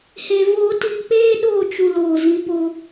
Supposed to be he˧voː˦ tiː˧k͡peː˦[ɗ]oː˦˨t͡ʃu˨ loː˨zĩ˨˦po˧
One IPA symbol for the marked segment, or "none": ɗ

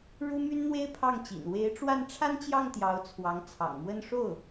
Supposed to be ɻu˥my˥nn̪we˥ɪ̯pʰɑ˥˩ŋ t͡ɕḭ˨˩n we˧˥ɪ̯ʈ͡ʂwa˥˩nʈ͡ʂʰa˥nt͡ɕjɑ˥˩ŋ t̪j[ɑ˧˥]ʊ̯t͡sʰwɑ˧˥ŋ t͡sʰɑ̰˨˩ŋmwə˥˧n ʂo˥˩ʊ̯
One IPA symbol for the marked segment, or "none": ɑ˧˥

